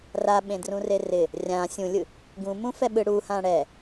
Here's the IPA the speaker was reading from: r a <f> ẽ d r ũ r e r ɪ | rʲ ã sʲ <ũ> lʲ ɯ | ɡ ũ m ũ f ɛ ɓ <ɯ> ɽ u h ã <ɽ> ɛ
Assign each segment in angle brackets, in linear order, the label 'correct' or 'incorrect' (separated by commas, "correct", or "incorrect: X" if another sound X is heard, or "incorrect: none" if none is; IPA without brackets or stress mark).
incorrect: ɓ, correct, correct, correct